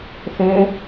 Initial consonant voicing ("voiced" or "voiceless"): voiceless